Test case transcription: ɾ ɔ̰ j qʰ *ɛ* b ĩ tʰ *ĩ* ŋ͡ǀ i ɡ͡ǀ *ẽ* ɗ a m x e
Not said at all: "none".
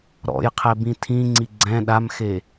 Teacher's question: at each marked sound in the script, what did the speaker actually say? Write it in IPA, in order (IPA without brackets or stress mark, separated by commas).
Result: ɛ, ĩ, ɛ̃